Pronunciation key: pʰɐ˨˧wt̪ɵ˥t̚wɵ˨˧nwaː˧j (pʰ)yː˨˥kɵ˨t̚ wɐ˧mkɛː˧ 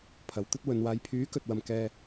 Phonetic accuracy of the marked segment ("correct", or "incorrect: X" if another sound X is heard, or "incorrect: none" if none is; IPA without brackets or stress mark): correct